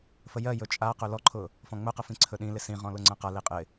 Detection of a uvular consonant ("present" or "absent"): present